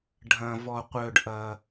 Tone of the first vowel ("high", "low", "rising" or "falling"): low